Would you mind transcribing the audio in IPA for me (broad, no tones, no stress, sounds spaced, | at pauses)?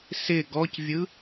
s ɪ ɡ ɔ c vʲ ɯ